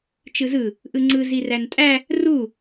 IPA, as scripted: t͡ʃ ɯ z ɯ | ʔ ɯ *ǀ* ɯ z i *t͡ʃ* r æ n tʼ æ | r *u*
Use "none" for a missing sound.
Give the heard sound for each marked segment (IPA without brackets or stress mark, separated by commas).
ŋ͡ǀ, none, u